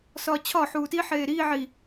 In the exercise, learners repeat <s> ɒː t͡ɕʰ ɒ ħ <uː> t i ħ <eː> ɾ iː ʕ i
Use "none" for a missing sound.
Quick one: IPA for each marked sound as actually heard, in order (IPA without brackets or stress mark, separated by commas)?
s, uː, eː